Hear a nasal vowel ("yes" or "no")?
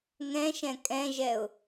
yes